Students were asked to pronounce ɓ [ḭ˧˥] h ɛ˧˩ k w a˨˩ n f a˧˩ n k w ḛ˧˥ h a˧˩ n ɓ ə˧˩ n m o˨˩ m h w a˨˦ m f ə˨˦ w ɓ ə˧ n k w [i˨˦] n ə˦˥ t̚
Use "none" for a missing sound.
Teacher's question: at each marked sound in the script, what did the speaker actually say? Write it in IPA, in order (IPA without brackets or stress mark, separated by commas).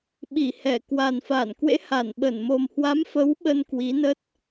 i˧˩, i˨˦